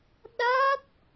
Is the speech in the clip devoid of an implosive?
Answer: no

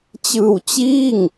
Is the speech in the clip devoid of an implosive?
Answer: yes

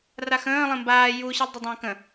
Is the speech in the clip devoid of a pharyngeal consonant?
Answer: yes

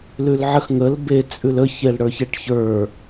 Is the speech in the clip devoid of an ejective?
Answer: no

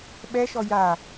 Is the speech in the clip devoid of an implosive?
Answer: no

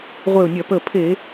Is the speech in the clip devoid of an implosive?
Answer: yes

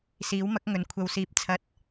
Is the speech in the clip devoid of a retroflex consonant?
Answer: yes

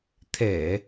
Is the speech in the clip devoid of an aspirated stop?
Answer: no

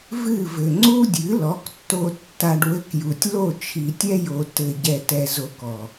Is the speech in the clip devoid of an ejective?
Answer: yes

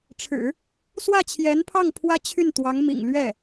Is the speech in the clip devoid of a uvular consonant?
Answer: yes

